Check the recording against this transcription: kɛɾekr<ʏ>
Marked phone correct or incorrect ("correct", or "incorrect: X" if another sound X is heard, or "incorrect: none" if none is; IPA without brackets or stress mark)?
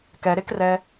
incorrect: ɛ